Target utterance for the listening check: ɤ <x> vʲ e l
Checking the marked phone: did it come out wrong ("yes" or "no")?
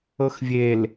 no